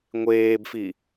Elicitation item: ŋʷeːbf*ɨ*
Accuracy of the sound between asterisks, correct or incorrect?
incorrect